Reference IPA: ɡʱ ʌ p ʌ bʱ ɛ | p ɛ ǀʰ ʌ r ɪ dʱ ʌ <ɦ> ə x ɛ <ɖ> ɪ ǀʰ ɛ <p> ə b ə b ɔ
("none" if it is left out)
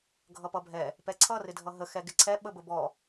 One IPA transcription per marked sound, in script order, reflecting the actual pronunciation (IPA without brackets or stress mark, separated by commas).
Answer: ɦ, ɡ, ɓ